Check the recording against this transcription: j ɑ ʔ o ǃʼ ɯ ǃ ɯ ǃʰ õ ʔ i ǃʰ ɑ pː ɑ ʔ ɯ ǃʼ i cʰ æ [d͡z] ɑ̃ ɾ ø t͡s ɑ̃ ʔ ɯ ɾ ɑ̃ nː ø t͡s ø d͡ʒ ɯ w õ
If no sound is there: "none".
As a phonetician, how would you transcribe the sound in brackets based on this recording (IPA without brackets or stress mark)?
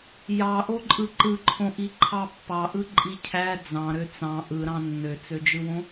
d͡z